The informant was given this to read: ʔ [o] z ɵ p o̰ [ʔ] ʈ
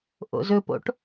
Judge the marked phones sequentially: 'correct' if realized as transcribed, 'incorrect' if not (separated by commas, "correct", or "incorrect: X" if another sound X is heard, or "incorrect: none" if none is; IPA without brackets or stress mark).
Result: incorrect: o̰, incorrect: none